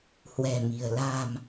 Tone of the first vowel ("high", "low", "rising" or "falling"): low